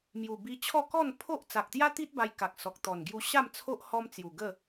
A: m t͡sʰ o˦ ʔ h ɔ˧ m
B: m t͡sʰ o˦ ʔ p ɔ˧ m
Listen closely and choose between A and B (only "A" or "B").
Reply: A